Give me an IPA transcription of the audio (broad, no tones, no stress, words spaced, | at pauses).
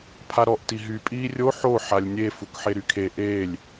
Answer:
pʰaɾɔʔti ɦy pʼiːrʲo ħo ħalʲnʲe fukħeɾykʰe ʔeːlʲ